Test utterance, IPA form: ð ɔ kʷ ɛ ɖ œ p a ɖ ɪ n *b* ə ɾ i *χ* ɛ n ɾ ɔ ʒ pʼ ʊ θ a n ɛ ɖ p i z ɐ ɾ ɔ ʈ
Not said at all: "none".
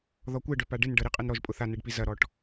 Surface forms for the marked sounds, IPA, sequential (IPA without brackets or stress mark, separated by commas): ɖ, qʼ